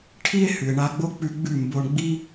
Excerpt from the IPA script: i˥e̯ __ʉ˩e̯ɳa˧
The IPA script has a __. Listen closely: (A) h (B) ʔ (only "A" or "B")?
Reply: A